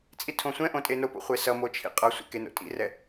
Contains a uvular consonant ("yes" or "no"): yes